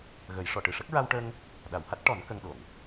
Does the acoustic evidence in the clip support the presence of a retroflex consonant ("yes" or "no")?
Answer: yes